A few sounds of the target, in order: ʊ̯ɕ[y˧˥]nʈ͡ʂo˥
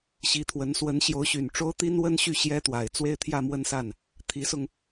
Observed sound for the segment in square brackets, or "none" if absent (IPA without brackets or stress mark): y˨˩